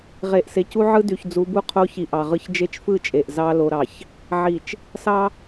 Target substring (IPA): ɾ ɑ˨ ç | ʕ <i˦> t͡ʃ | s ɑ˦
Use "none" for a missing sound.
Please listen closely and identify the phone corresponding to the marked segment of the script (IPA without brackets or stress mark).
i˨